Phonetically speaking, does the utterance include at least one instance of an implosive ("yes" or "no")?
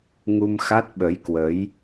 yes